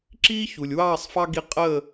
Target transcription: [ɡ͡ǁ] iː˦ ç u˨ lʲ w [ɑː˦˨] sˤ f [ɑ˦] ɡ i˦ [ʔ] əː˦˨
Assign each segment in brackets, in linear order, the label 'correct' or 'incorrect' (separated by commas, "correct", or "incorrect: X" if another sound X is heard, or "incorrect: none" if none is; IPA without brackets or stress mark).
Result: incorrect: ǁ, correct, correct, incorrect: qʼ